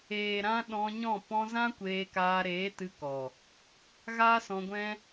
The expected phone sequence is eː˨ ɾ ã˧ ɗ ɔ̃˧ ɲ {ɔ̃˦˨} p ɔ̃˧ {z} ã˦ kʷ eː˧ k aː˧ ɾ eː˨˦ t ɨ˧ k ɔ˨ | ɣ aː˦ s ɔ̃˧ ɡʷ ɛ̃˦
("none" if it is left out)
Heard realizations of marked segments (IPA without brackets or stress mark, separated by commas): ɔ̃˦˨, z